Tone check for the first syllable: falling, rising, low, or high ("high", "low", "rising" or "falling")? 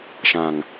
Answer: low